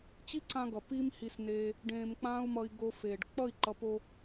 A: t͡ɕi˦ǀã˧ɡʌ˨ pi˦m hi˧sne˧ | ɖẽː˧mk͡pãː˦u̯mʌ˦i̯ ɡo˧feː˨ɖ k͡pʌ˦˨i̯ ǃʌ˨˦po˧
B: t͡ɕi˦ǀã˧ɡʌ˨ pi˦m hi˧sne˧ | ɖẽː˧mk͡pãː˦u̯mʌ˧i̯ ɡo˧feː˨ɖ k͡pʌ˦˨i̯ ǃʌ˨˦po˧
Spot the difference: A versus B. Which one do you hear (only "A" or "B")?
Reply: B